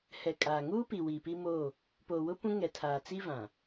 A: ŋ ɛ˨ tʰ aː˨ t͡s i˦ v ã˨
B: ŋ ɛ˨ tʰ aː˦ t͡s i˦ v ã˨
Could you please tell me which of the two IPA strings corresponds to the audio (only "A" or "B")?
A